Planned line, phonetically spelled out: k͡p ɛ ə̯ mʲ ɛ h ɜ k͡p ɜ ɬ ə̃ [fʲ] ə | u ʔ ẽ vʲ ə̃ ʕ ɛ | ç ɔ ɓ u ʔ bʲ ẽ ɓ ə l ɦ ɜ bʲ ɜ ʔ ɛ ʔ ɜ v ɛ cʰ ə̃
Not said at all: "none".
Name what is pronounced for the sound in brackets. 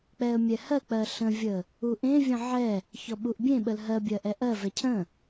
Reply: vʲ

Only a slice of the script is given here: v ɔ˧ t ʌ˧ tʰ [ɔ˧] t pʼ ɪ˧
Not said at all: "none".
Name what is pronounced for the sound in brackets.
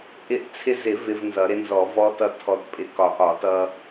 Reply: ɔ˧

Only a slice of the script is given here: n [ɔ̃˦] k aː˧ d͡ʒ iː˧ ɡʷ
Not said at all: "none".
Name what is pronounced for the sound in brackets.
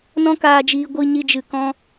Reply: ɔ̃˦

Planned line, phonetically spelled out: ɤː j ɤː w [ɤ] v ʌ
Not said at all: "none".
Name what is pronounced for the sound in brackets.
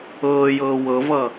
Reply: ɤ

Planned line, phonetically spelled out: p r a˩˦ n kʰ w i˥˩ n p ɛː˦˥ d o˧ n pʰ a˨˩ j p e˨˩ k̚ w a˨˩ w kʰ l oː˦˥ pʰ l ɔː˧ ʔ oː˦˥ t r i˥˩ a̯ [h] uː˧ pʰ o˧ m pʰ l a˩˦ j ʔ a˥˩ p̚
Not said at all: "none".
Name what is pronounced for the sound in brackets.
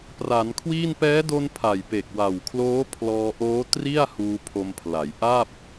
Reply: h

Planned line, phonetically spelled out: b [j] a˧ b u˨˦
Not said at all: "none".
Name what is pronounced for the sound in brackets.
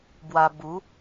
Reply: w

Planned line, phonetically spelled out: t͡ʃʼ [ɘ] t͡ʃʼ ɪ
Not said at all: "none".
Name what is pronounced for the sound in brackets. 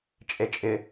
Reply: e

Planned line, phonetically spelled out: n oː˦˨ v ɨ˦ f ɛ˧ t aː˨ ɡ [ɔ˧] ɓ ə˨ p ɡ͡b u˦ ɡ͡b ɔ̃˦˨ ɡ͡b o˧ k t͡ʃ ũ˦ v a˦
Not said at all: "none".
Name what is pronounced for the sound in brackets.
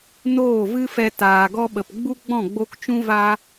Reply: ɔ˧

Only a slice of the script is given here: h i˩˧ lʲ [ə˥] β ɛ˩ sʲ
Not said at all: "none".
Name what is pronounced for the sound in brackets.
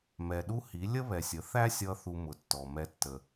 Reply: ə˥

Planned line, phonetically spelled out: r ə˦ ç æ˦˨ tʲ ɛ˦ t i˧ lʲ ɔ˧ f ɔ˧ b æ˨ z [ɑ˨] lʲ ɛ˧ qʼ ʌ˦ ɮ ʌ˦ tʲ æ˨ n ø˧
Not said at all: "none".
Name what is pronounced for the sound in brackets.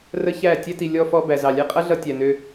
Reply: ɑ˨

